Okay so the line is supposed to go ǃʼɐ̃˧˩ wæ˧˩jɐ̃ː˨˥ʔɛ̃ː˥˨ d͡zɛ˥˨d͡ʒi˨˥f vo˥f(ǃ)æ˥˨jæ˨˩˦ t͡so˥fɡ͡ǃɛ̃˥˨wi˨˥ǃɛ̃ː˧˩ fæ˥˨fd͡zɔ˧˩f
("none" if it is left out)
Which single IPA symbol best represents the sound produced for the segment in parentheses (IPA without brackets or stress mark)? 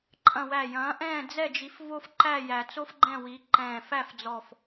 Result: ǃ